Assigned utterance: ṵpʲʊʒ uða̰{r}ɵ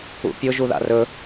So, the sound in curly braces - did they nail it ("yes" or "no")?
yes